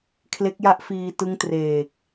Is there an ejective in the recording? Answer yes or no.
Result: no